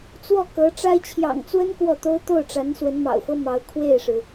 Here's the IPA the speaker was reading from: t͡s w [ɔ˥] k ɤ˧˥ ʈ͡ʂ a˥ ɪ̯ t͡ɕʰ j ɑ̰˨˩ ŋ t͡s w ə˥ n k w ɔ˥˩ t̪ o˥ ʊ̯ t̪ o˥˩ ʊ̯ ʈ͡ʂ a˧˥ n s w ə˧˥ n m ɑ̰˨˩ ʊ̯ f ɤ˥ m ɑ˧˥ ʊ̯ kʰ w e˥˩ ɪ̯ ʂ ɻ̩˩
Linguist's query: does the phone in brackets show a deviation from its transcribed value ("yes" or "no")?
yes